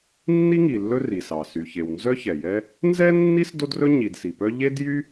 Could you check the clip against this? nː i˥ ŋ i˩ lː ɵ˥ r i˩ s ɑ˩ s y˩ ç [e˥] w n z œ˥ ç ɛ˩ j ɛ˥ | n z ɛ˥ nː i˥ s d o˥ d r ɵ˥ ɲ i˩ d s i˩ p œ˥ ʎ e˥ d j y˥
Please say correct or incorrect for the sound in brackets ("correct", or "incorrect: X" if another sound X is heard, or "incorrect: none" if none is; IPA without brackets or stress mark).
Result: incorrect: e˩